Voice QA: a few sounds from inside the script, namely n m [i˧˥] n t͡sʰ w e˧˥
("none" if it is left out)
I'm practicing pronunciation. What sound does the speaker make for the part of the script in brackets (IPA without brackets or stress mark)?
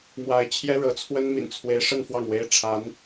ḭ˨˩